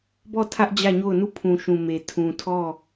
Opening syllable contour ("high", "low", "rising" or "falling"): falling